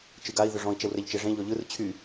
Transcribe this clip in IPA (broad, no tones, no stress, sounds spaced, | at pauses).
t͡ʃ ɯ ɡ a i̯ ð ʏ ʐ ɔ̃ i̯ t͡ʃ ɛ w r ɛ ʎ t͡ʃ e ʐ ẽ ʎ ɔ ʎ ɯ r t͡ɕʰ y